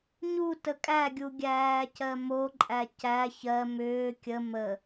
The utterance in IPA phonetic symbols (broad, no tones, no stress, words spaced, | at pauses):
ɲu təkʼæɡʲu ɡʲæːcɜmoǃʼæ cæ çɜ mʏː kʲə mə